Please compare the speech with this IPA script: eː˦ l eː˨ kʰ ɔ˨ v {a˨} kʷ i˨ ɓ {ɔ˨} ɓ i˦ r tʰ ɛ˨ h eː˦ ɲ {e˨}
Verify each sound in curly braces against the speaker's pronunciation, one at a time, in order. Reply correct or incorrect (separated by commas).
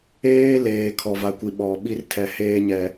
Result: correct, correct, incorrect